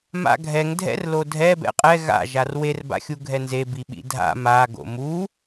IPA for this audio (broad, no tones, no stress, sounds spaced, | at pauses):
m a̰ ɡʱ ɛ ŋ dʱ ɛ̰ r l o dʱ ɛ b ɛ̰ qʼ ɛ ɣ a̰ ʒ a r w e r b a̰ xʲ u ɡʱ ɛ n z e b i ɓ ḭ dʱ a̰ m a ɡ o̰ m u